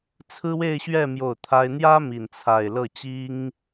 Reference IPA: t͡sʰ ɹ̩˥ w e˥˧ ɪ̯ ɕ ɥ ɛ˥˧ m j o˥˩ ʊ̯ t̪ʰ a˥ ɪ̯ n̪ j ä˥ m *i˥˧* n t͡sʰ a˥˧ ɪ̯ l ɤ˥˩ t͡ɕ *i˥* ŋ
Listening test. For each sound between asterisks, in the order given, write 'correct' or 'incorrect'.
correct, correct

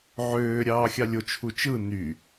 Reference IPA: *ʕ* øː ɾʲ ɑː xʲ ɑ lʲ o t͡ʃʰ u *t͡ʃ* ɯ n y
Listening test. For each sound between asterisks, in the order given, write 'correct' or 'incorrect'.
correct, correct

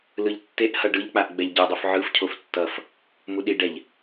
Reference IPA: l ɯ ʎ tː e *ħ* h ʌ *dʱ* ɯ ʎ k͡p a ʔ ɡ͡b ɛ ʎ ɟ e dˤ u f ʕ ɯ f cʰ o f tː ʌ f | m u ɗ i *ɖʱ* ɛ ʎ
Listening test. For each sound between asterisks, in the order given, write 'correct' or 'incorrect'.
incorrect, incorrect, incorrect

